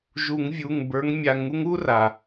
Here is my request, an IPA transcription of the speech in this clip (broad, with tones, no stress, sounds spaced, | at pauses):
ʒ u˨˩˦ ŋ vʲ u˩˧˩ ŋ b ə˞˨˦ ŋ mʲ a˨˩˦ ŋ u˥ ŋ u˥ r a˩